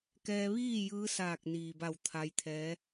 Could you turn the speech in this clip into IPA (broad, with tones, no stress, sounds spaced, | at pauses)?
k ɛː˧ ʋ iː˥˨ j ɯː˧˥ s aː˧˩ k̚ n iː˩ b a˧˩ w t̪ʰ a˧˥ j t̪ʰ ɛː˧˥